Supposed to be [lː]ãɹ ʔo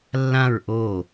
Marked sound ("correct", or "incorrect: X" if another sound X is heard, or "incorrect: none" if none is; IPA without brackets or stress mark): correct